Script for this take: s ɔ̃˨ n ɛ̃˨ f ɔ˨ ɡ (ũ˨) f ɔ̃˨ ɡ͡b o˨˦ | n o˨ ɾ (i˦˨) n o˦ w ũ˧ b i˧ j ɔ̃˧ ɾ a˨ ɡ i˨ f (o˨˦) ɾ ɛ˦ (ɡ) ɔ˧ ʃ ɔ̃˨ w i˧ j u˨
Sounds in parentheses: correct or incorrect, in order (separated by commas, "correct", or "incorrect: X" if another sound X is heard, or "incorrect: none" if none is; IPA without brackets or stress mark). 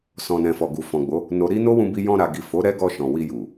incorrect: u˨, incorrect: i˧, correct, correct